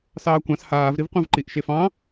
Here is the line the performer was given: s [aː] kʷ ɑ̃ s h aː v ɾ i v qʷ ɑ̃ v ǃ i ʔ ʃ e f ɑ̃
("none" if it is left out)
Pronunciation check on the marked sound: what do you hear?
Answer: ɑː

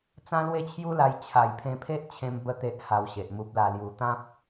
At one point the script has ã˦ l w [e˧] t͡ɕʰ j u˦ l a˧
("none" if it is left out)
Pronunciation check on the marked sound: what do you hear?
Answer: e˥˧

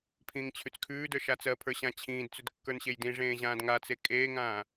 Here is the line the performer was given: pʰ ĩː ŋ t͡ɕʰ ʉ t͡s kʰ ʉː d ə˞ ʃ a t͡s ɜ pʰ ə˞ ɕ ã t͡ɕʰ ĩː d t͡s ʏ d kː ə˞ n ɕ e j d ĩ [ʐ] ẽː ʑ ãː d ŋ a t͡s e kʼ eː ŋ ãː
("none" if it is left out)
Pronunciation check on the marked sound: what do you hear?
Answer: ʐ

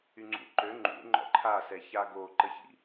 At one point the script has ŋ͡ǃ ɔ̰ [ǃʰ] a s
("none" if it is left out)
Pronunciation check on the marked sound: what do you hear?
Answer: ǃʰ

